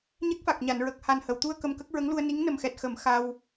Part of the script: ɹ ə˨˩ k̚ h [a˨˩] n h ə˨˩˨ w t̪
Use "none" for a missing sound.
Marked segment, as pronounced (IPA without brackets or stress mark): a˨˩